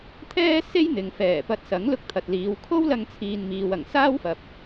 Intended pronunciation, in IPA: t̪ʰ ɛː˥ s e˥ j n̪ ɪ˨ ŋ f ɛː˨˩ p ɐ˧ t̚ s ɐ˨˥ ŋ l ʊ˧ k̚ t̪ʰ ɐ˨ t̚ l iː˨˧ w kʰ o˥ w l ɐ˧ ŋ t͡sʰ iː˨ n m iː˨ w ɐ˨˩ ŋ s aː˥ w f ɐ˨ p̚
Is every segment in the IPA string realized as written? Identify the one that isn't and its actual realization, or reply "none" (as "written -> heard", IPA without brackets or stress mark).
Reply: none